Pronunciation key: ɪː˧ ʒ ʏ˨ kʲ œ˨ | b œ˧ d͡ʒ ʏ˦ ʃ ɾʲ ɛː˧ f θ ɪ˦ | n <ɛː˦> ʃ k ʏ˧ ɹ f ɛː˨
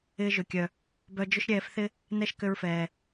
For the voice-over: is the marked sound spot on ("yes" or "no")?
no